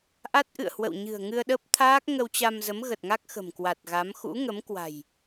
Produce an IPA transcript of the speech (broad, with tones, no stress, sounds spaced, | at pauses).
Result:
ʔ a˦˥ t̚ ʔ ɨ̰˧˨ ə̯ h w ə̰˧˨ w ɲ ɨ̤˨˩ ə̯ ŋ ɨ˧ ə̯ ɗ ə˦˥ p̚ t̪ʰ aː˦˥ k̚ ŋ ə˧ w t͡ɕ a˧ m z ə˨˦ m ɣ ə˨˩ t̚ ŋ a˦˥ k̚ x ə̤˨˩ m k w a˨˩ t̚ ɣ a˨˦ m x ṵ˧˥ ŋ ə˨˦ m k w a̤˨˩ j